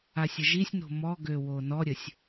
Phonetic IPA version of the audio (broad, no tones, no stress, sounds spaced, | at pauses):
a sʲ ə ʒ i sʲ n o̤ m ɔ ɡ ø w o n ɔ ɾʲ ə sʲ